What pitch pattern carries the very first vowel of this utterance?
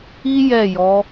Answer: high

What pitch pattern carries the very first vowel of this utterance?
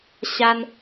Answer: high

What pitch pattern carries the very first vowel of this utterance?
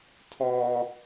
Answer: high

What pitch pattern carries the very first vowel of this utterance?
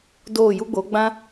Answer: falling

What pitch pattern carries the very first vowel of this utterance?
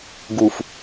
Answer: low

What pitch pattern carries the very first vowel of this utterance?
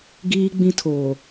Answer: high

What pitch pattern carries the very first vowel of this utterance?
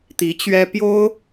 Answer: rising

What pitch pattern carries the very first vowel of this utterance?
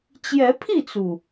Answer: rising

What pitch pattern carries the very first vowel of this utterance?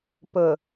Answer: low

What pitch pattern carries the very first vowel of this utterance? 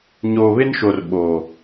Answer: low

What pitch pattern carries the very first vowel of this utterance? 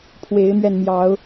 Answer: rising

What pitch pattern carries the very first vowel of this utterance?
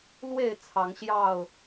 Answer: low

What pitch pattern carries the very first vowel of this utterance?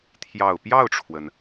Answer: low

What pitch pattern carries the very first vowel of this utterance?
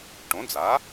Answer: rising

